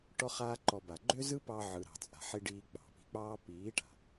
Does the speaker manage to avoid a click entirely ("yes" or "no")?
no